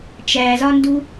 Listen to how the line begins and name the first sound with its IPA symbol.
t͡ʃ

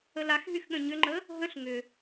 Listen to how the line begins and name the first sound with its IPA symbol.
ə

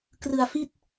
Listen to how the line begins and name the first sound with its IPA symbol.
k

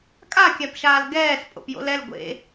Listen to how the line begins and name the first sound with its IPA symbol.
kʼ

